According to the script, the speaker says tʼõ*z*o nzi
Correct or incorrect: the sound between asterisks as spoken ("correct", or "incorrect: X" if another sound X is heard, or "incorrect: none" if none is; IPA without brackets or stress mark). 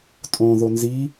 incorrect: ð